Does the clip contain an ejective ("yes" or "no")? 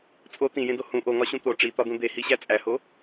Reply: yes